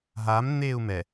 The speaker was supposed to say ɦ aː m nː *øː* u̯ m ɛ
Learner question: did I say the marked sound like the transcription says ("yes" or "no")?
no